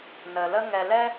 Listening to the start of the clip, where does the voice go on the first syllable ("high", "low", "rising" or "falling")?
low